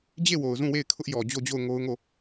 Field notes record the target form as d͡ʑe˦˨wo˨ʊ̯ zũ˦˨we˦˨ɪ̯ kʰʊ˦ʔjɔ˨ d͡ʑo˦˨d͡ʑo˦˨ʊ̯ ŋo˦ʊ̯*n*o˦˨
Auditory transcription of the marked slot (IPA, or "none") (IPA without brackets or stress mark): ŋ